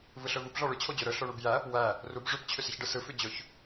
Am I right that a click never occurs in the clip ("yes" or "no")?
yes